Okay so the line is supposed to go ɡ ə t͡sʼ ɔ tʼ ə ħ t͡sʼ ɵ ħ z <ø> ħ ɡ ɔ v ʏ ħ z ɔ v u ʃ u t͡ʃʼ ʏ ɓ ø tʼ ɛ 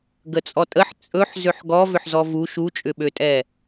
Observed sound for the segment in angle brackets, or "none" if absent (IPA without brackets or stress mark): ø